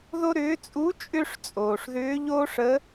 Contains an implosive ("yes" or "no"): no